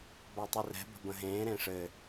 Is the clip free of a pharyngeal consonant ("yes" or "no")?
yes